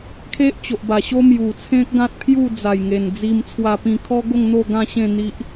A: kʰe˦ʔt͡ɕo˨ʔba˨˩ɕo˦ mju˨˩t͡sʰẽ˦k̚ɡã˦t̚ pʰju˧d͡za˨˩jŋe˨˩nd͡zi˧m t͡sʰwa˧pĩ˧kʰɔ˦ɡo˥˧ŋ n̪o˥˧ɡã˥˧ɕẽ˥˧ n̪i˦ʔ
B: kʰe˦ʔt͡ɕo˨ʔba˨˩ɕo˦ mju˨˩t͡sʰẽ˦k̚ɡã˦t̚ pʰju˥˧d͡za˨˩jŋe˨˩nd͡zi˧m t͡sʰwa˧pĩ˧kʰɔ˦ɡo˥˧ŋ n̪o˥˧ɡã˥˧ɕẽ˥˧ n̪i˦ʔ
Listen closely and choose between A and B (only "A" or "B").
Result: B